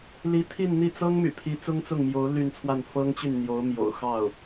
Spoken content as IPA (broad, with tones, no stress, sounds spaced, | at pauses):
l i˧˥ t̪ʰ i˥˧ n n̪ i˥˩ t͡s ɤ˥ ŋ m y̰˨˩ pʰ i˧˥ t͡s ʊ˥ ŋ t͡s ʊ˥˩ ŋ m j o˧˥ ʊ̯ l y˥˧ n t͡sʰ w a˥˩ n f ɤ˥ ŋ t͡ɕ y˥˩ n n̪ j o˧˥ ʊ̯ m j o̰˨˩ ʊ̯ x ɑ˥˩ ʊ̯